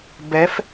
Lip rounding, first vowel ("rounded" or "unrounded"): unrounded